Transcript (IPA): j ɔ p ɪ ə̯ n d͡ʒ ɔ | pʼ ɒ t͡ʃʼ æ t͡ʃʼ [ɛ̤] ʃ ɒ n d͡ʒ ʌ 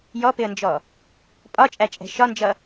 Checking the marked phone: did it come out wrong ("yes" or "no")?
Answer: no